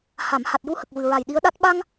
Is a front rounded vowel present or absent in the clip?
absent